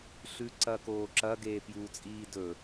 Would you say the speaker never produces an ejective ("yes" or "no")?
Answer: no